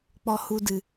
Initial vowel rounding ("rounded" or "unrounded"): rounded